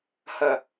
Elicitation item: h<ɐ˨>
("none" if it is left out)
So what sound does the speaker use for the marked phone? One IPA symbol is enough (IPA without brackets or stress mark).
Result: ɐ˨